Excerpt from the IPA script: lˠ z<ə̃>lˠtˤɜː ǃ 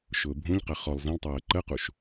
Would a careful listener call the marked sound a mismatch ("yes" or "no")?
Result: yes